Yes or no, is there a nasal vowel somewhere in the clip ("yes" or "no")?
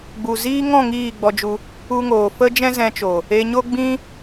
yes